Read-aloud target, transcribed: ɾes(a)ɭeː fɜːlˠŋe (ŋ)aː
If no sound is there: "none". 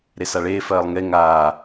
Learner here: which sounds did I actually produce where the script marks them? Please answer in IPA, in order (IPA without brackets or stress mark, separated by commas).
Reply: a, ŋ